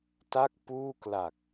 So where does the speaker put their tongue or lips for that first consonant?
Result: tongue tip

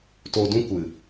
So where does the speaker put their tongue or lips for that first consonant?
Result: tongue tip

